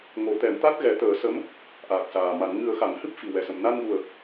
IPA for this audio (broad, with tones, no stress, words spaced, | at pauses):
ŋo˨˩˦t̪ɛ˨˩˦mt̪a˦˥t̚ ɣɛ˨˩˦t̪əː˨˩˦sə˧˥m | ʔaː˨˩k̚ saː˨˩ma˨˩˦n ŋɨ˨˩˦ə̯xa˨˩˨ŋ hɨ˦˥p̚fi˨˩ wɛ˨˩sə˨˩m na˧nɣu˨˩ə̯